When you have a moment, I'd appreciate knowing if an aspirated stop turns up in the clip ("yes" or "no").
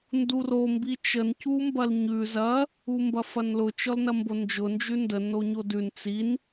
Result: no